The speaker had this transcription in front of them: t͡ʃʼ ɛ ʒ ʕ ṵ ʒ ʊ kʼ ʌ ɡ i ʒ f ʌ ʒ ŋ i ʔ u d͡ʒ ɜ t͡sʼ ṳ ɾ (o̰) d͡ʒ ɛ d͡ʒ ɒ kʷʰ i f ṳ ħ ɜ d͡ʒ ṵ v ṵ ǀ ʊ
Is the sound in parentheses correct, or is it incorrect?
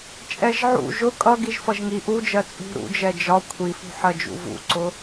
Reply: incorrect: ṵ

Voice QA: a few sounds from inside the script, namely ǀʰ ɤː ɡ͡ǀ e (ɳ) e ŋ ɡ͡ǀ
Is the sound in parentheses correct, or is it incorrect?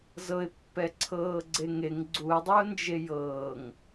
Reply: incorrect: ŋ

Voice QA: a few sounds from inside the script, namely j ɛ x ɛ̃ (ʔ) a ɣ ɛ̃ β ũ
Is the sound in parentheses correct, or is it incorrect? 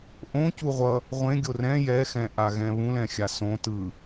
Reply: correct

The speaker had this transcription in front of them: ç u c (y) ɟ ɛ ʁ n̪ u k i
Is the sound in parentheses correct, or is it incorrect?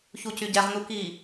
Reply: correct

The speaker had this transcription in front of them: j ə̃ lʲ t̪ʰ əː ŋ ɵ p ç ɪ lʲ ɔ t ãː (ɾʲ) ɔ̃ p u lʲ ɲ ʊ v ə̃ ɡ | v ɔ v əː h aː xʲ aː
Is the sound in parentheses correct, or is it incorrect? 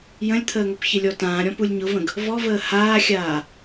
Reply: correct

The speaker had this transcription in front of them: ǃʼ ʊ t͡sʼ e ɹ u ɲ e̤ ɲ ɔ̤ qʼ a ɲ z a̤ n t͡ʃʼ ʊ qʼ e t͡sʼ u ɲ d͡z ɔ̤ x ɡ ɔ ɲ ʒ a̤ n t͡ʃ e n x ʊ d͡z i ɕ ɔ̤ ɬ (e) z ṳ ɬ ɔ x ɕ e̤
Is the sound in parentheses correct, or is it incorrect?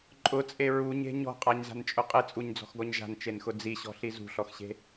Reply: incorrect: i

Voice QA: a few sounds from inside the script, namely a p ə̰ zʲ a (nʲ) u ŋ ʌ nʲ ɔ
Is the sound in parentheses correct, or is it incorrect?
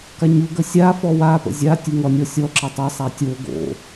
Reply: incorrect: tʲ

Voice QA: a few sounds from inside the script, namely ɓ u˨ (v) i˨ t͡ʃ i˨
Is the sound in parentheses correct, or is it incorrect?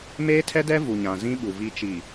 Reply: correct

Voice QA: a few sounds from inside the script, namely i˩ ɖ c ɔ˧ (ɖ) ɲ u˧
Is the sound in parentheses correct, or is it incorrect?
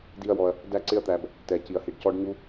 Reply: correct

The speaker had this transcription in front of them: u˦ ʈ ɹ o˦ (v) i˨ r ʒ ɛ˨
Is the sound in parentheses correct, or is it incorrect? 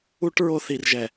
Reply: incorrect: θ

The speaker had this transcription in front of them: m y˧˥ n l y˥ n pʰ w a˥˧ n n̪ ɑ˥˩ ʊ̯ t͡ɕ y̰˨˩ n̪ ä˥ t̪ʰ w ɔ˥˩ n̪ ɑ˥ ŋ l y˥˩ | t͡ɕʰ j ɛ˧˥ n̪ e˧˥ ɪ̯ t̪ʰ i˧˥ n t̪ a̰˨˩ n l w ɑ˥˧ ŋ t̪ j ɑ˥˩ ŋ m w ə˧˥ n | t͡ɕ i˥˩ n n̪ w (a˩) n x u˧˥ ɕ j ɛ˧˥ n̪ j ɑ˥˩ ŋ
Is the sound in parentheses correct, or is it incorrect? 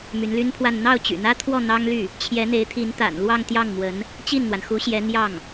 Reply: correct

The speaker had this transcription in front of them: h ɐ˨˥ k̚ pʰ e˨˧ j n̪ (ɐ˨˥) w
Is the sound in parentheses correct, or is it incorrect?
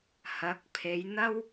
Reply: incorrect: ɐ˥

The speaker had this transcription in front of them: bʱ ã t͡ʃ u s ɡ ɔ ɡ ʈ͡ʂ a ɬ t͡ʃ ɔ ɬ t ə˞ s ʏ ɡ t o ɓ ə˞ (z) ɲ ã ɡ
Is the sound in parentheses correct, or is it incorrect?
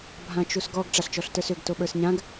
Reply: incorrect: s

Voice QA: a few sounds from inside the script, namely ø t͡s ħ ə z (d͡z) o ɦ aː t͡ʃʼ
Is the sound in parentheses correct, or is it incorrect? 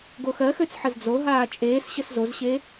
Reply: correct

